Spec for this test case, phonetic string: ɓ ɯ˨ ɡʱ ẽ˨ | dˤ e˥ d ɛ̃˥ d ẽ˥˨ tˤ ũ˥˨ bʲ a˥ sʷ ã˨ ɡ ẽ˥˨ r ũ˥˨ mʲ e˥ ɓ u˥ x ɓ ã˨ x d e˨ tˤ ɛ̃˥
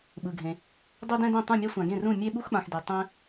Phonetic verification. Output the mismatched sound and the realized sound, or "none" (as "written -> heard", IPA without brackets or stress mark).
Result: bʲ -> mʲ